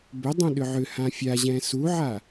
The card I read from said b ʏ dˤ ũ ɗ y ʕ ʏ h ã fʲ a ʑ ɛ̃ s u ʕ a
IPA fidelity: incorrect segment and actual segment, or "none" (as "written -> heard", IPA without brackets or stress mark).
y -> ʏ